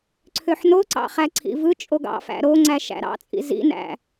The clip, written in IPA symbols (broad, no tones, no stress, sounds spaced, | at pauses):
ǀʰ ø ħ n o ǀ ɑ̰ χ æ ǀʰ ḭ v ɯ t͡ʃʼ o ɡ ɑ̰ f æ̰ ɾ o ŋ͡ǀ æ ʃ æ̰ ɾ ɑ̰ t͡sʼ ḭ z ḭ n æ̰